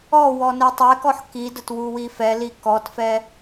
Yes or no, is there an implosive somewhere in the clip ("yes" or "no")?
no